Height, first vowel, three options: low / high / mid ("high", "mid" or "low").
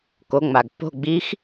mid